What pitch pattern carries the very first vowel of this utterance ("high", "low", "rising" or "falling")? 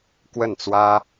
falling